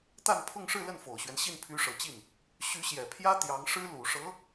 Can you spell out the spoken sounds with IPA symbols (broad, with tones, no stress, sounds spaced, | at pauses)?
t̪ a˥˧ n pʰ ʊ˥˧ ŋ ʂ ɻ̩˥˧ l ə˥˩ n f o˨˩ ʊ̯ ɕ ɥ ɛ˦ n ɕ i˥˩ n pʰ y˧˥ ʂ ɤ˨˩ t͡ɕ i˥˩ n | ɕ y˧˥ ɕ j ɛ˨˩ pʰ j ä˥ t̪ j ɑ˧˥ ŋ ʂ ɻ̩˥ l u˨˩ ʂ ɤ˧˥